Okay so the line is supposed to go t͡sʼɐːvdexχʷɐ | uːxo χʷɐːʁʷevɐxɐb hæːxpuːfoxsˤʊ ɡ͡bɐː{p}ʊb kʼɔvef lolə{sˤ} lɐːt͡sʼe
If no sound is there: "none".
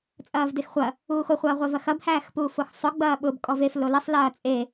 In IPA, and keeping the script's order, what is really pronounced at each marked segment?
ɓ, sˤ

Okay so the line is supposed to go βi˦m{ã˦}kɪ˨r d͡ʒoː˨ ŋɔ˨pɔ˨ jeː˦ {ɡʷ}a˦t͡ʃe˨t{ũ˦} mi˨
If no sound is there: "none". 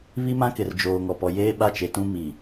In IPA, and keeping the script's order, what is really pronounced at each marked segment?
ã˦, ɓ, ũ˦

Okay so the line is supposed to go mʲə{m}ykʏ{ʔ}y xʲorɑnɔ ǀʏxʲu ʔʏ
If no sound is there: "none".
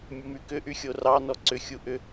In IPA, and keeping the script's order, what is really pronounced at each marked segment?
m, ʔ

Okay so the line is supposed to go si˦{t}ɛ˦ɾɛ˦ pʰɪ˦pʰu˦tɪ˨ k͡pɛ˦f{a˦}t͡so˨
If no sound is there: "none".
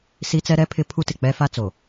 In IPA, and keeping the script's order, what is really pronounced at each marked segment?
t͡s, a˦

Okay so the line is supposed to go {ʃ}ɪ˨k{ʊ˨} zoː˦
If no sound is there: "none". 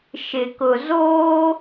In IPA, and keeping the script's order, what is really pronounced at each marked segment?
ʃ, ʊ˨

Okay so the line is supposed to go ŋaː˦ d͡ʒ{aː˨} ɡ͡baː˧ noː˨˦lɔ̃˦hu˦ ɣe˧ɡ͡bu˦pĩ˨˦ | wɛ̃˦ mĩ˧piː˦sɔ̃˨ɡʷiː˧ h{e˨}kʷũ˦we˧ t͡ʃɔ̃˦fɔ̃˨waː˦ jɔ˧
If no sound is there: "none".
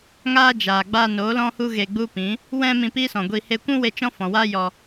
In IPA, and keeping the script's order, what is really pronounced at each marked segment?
aː˨, e˧

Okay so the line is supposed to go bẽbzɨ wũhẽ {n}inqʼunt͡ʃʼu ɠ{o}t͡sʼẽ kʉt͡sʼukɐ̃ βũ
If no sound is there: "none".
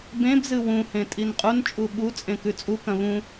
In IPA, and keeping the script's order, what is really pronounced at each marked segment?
tʼ, u

